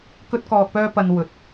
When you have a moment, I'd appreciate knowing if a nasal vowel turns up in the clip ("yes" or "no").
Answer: no